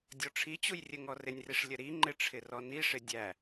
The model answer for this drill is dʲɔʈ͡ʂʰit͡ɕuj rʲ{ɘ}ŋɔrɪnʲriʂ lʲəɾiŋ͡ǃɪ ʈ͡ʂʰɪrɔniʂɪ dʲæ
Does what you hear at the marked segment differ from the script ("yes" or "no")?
no